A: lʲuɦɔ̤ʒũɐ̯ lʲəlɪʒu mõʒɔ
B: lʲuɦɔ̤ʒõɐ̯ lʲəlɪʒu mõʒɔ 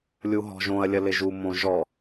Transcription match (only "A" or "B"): B